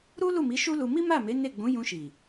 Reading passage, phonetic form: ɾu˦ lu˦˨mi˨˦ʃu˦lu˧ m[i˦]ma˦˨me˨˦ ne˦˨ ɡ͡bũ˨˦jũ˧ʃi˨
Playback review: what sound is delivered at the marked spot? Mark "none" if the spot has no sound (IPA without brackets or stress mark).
i˦